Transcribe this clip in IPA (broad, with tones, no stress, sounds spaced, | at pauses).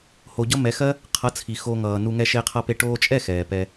h o˨ ɟ ʌ˧ m ɛ˨˦ x ɜ˦ | qʰ ʌ˨˦ t͡sʰ i˨ x o˧ ŋ ʌː˨ n u˧ ŋ ɛ˧ ʃ e˧ qʰ ʌ˧ p e˧ ʈ oː˧ t͡ʃʼ ɛ˦˨ x ɛː˨ p ɛ˧